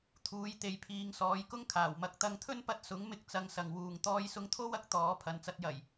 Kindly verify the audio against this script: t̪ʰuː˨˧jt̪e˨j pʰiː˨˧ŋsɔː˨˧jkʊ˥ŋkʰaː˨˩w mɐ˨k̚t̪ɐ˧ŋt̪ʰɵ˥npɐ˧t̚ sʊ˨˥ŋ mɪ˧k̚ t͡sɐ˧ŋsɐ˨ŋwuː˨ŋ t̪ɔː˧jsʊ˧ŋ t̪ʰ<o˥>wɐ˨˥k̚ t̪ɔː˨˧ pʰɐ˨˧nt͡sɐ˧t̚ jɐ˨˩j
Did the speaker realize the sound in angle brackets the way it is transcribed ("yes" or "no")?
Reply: yes